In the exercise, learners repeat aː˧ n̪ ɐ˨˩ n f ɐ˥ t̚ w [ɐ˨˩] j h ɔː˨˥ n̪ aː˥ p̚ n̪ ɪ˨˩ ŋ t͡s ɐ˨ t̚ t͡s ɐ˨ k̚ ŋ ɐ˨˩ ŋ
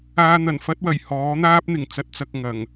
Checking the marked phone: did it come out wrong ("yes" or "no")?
no